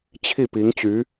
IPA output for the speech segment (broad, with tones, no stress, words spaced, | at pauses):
t͡ɕʰi˥˩ pi˧˥ŋt͡ɕy˧˥